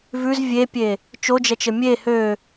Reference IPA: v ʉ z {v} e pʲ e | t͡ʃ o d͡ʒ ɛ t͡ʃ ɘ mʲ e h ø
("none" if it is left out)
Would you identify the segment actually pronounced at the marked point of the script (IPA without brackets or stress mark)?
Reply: vʲ